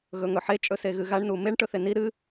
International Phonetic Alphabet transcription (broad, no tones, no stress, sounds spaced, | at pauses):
ɣ ɵ ŋ ɵ ħ e t͡ʃʼ ɵ s e ɣ ɨ ɣ a ɳ n u m e ɳ ʈ ɵ θ e n i ɾ ɨ